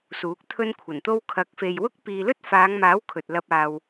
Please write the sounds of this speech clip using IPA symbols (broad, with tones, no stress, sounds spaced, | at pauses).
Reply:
s uː˨˥ k̚ t̪ʰ ɵ˥ n kʷʰ ɐ˨˩ n t̪ o˥ w kʰ ɐ˨˥ k̚ f e˨ j w ʊ˥ k̚ p iː˨ l ɵ˥ t̚ f aː˨˧ ŋ m aː˨˥ w kʰ ɵ˨ t̚ l ɐ˧ p̚ aː˨ w